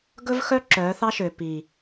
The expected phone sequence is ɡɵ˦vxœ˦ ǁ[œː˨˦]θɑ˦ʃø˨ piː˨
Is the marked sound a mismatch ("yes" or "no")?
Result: no